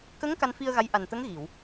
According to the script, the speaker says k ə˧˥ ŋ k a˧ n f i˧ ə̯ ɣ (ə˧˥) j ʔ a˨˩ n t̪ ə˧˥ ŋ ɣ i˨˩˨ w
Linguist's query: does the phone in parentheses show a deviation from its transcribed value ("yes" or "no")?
yes